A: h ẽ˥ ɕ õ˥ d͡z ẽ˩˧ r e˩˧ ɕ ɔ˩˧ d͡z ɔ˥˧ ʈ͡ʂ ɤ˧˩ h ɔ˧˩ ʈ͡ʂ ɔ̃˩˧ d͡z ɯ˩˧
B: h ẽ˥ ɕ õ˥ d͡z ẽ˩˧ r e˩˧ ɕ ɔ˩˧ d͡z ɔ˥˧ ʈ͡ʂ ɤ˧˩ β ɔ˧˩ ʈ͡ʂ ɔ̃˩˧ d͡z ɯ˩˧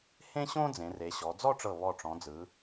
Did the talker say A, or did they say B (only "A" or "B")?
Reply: B